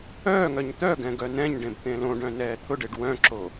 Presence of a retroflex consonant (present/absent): present